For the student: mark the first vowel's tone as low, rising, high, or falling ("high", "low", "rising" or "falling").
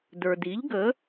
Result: low